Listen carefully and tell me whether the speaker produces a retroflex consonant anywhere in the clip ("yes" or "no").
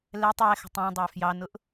no